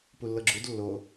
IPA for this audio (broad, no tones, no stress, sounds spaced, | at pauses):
p u lː ɤ ɡ͡ǁ u d lː o